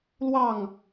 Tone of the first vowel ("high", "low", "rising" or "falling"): falling